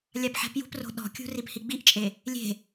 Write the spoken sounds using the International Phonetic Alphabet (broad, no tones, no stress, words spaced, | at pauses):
lʲapħɛ̤pjṳpro̤ ɗɔ̤kʲṳ riphiɡ͡biʔt͡ʃʼe | lʲe̤